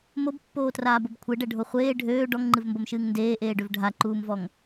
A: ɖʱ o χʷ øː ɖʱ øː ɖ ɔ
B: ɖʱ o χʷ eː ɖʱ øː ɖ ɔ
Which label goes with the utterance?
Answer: B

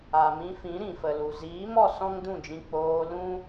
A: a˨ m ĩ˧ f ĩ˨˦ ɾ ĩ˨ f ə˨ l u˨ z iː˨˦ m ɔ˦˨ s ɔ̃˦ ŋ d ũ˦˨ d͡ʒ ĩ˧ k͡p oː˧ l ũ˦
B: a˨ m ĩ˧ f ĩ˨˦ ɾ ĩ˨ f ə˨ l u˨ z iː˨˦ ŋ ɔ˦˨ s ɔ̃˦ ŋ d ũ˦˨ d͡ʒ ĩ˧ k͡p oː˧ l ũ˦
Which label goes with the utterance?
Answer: A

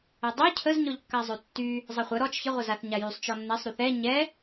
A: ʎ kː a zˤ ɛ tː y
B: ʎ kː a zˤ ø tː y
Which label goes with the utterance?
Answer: B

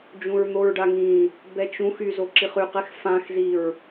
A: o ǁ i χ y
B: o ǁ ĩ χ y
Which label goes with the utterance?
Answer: A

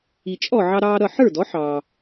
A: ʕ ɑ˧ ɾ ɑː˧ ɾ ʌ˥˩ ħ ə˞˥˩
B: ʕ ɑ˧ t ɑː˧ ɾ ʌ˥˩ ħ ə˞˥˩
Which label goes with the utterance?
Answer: A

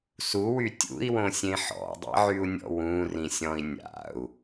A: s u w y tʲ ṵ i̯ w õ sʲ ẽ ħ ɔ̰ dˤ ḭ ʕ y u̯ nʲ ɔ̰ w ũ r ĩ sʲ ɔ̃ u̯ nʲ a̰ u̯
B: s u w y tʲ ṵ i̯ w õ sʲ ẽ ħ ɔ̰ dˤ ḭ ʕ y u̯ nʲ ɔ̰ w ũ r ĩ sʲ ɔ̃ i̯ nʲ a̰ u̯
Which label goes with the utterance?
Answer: B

